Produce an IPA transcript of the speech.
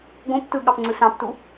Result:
ɡ õ p t ɯ ɠ ɑ p ŋ͡ǀ ɯ s ɑ̃ p t u

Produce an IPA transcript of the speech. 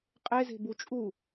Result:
qʼ e z e̤ b u t͡ʃʼ u

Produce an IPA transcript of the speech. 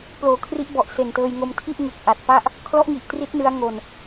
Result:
p l oː˩˦ kʰ r i˦˥ ʔ b ɔ˨˩ ʔ s e˨˩ n t ɤː˧ j ŋ o˧ m tʰ i˥˩ ʔ ŋ ɯ˨˩ k̚ ʔ a˨˩ t̚ p a˥˩ ʔ | kʰ l ɔ˦˥ ʔ ŋ i˨˩ ʔ t r i˦˥ t̚ n ɯ˦˥ a̯ ŋ o˧ n

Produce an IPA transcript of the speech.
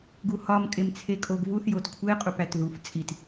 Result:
ɡ u h ɒ m kʼ e m t͡sʰ e kʼ o ɡ v u θ j o t kʷʰ e qʼ u p æ t ð u f t͡sʼ i t

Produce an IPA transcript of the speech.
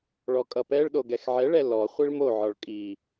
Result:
ɭ ɔ kʼ ʌ p ɛ ɭ ɗ o ɡ ɛ x ʕ ɛ ɭ ɛ l ɔ χʷ i ɭ m o ʕ ɒ ɭ kʼ i

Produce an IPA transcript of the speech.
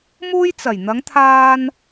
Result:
m uː˥ j t͡s ɐ˨˩ j n̪ ɐ˨˧ ŋ t̪ʰ aː˧ n

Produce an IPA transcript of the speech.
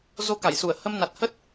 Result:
z o˧ k a˧˩ j s u˧˩ ə̯ h ə˧ m n a˨˩ t̚ h ə˦˥ t̚

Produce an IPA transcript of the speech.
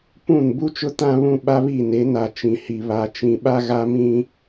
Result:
p ũ˦˨ n b u˦ t͡ʃ ʊ˦ t ã˦ β ũ˦ ɓ a˦ β i˦˨ n e˨˦ n a˨ t͡ʃ ĩ˨ h i˨ β a˨ t͡ʃ ĩ˨ ɓ a˦ ɣ a˦ m ĩ˦

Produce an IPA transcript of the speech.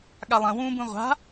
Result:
ɠ a lˠ ɐ̃ w ũː b ũ ʁʷ a̤

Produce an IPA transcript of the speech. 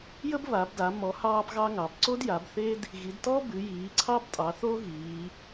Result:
j ə˥ b β a˩˧ b d a˩˧ m ɔ˩˧ h ɑː˥ b ɣ ɑ˥ ŋ ɑ˩˧ b ǀ o˥ d j a˩˧ b θ e˥ d | ɣ i˩˧ d t ɔ˥ b ɨ˩˧ j iː˩˧ ǀʰ ɑ˥ b tʼ ɑ˩˧ θ o˥ ɣ iː˩˧

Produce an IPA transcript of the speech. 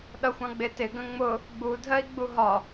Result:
ɗ ʌ xʷ ɑ̃ ɡ͡b ɪ t ɪ ɡ ə̃ ŋ͡m ʊ | ɡ͡b u dʱ ɜ i̯ ɡ͡b u ɦ ɒ

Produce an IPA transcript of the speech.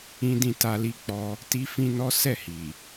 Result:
ĩ˧ d ĩ˧ t a˧ l i˧ k͡p ɔ˧ | t i˦ f ĩ˦ n ɔ˦ s ɛ˦˨ h i˨

